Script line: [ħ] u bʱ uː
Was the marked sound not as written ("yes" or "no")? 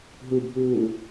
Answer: yes